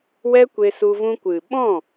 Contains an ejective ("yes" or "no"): no